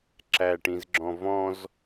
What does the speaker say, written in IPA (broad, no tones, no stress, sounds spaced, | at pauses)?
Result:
ǁ æ ʈ ĩ z ɡ͡ǁ ɔ̃ v ɔ̃ z